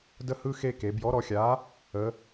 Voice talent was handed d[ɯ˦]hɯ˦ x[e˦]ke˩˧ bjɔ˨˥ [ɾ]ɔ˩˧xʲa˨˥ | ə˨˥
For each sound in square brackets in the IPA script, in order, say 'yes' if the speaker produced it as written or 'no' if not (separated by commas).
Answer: no, yes, yes